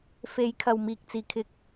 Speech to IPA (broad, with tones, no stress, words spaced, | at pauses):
fe˨˧j kʰɐ˨wmiː˨k̚ t͡siː˨˧kʰɪ˧k̚